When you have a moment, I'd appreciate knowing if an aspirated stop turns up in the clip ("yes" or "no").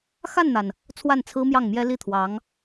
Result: yes